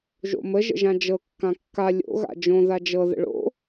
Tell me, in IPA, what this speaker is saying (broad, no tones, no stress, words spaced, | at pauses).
ʒo̰mə ʒə̰ʒãd͡ʒɤ kːãkːa lʲo̰ ɣa̰d͡ʒõ ðad͡ʒɤ ðə̰ɭo̰